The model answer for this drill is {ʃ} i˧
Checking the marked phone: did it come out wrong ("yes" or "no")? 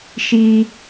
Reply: no